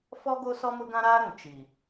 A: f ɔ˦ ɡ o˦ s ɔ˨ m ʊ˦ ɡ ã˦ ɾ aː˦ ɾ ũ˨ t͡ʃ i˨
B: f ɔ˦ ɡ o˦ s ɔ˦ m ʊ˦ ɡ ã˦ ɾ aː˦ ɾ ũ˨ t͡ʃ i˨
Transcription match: B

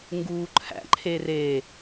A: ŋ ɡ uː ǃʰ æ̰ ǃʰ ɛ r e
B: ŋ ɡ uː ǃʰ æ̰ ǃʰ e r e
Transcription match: B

